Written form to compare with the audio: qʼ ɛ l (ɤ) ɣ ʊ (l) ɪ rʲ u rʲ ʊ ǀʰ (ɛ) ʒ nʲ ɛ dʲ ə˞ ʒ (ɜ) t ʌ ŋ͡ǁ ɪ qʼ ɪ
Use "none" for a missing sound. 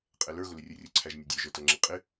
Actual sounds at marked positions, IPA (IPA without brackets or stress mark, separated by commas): ə˞, l, æ, ə˞